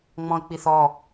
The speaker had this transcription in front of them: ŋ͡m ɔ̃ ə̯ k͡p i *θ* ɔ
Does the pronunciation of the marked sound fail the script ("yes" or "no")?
no